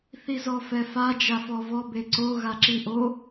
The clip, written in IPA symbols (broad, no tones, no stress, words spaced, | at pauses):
θizɔfɛfa d͡ʒafɔvɔ beǀo ɣaǁiʔo